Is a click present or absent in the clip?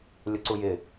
present